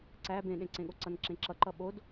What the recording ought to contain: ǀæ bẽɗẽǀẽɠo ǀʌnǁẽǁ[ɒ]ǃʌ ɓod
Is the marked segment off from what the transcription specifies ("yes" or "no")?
yes